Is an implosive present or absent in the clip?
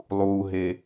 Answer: absent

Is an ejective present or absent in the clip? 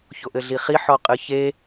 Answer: present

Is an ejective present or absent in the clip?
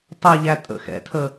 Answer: present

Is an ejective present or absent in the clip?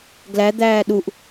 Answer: absent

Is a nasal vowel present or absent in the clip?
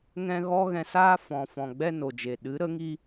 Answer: present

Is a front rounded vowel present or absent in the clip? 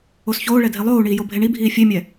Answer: absent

